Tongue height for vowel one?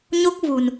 mid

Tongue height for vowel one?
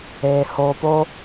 mid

